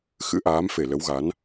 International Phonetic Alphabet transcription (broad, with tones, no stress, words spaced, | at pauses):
xɨ̰˧˥ʔaː˨˦mfe˧˩ lə˨˦wɣa˨˦n